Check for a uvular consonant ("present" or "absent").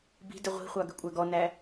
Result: present